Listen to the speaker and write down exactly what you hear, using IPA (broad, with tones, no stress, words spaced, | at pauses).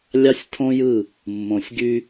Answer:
lʲɑ˦sʲtʰõ˦jɯ˦˨ | mːõ˨sʲɡy˦